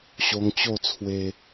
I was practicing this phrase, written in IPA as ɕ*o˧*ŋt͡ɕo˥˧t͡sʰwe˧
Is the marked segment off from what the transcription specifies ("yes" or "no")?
no